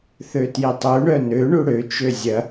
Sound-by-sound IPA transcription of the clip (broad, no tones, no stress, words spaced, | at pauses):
θøtjitˤu ɳœnø ɳuɽø t͡ʃøzʲɐ